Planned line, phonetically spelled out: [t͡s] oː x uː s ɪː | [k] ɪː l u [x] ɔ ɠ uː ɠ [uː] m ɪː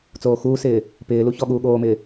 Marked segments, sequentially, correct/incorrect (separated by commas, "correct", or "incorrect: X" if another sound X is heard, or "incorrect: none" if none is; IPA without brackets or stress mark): correct, incorrect: p, incorrect: ç, incorrect: oː